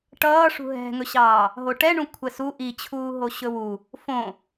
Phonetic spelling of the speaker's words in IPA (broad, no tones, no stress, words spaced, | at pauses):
ʈʌːʂṳ ɦɛ̤ŋɵɕɑː | ɦoʈɛɳũ kʷʰɛsu ʔit͡ɕʰuː ɦoɕɵwu | fõ